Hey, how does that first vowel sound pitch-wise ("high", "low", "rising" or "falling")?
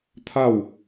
falling